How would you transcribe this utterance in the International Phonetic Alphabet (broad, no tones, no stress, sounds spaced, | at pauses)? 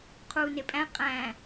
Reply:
qʰ uː n e pʼ æ̃ qʼ æ̃